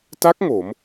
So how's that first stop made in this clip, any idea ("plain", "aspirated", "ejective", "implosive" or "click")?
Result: plain